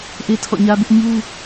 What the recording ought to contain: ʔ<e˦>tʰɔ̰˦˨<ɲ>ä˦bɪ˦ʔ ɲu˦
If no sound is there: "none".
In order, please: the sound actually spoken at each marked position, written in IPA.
e˦, ɲ

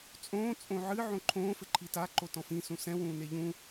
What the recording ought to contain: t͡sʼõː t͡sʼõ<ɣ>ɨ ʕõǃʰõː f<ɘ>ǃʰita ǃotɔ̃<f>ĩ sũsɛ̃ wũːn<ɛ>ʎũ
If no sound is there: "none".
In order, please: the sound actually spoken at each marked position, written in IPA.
ʕ, ɘ, f, e

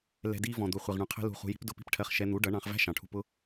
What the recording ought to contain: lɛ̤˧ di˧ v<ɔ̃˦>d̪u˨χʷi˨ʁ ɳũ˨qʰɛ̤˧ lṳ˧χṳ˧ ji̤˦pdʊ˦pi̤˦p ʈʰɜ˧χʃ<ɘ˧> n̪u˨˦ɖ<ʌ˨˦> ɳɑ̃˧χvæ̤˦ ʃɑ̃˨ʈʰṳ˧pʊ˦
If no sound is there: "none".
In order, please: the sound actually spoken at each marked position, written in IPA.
ɔ̃˨, ɛ˧, ʌ˨˦

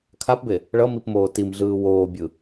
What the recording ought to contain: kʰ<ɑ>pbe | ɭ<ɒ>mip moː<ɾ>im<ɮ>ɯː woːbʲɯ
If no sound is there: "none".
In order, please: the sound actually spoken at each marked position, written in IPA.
a, ʌ, t, ɮ

